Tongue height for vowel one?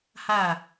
low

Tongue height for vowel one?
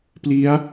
high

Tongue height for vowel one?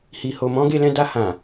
high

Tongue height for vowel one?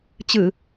high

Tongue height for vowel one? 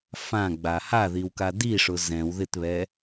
low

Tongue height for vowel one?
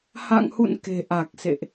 low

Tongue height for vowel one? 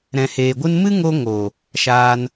mid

